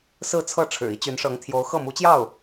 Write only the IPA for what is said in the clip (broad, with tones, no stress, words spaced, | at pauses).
sɹ̩˥˧t͡sʰɤ˥˩ ʈ͡ʂʰɻ̩˨˩i˥ t͡ɕy˧˥nʂɤ˧˥ŋt̪ʰjo˧˥ʊ̯ xɤ˥˩mu˧˥t͡ɕjɑ˥˩ʊ̯